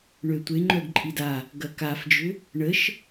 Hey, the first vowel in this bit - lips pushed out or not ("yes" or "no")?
yes